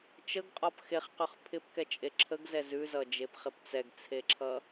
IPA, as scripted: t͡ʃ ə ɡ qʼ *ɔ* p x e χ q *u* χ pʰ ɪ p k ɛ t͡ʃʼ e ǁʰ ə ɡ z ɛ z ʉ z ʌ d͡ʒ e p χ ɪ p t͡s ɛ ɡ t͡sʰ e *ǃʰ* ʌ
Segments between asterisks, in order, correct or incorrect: correct, incorrect: ʉ, incorrect: ǁʰ

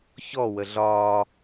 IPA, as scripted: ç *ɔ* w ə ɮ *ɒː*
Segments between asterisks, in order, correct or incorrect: correct, correct

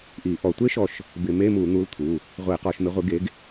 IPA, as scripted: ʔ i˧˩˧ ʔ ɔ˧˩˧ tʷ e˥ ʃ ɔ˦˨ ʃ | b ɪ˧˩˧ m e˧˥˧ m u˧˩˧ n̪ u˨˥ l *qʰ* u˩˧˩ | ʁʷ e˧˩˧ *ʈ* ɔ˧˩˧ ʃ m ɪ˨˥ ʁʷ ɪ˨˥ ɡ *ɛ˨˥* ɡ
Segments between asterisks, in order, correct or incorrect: incorrect: t̪ʰ, incorrect: q, incorrect: e˨˥

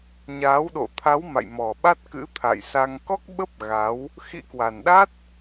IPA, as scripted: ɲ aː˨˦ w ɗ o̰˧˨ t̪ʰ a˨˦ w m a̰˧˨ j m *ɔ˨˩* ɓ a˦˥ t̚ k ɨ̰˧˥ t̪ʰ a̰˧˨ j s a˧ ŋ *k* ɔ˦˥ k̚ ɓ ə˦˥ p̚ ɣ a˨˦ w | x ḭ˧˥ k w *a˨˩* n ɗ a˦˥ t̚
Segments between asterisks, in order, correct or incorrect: correct, correct, correct

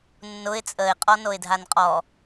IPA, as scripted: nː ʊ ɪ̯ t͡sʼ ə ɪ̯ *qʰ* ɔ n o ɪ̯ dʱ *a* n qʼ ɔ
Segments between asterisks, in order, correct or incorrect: incorrect: qʼ, correct

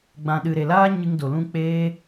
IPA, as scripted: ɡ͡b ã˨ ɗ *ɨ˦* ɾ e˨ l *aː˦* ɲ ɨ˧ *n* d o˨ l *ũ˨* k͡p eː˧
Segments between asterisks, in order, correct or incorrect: incorrect: ɨ˨, correct, incorrect: ŋ, incorrect: ũ˧

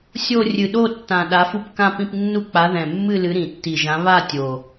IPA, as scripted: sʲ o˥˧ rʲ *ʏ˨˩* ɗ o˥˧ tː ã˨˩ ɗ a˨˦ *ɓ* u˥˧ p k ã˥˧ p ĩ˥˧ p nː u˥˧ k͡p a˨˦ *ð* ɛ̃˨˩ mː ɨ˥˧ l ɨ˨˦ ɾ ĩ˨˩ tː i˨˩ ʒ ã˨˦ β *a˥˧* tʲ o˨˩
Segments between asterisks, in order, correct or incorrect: incorrect: ɨ˨˩, incorrect: f, correct, correct

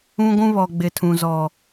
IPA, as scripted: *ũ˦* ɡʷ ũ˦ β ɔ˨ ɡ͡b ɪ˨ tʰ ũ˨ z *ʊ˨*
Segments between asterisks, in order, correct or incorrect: correct, incorrect: ɔ˨

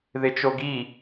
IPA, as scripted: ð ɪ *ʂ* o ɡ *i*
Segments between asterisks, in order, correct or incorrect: incorrect: t͡ʃ, correct

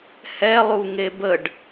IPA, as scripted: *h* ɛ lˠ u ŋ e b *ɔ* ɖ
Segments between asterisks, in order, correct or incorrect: correct, incorrect: ə

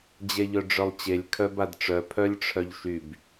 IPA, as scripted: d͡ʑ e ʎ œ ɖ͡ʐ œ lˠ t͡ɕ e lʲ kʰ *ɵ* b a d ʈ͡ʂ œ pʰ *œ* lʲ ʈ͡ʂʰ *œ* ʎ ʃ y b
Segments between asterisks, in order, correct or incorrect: incorrect: œ, correct, correct

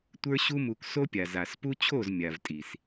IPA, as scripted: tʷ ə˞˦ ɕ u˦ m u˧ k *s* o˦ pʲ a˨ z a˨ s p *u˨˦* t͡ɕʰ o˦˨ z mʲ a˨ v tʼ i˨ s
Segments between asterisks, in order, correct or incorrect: correct, incorrect: u˦

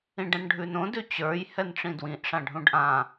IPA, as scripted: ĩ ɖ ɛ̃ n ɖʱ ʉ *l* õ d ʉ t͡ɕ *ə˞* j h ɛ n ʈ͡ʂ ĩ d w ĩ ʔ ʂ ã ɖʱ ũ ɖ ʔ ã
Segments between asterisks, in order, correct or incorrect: incorrect: n, correct

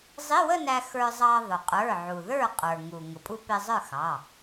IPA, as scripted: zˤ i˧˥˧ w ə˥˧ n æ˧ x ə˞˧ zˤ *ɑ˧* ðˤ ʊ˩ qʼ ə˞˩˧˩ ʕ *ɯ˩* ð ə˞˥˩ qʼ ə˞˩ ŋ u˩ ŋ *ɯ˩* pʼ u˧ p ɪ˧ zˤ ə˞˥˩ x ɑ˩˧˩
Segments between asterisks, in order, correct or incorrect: correct, incorrect: u˩, incorrect: ʊ˩

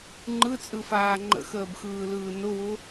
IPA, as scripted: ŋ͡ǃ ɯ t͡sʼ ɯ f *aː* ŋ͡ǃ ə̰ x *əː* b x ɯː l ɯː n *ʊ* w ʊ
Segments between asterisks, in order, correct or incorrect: correct, correct, correct

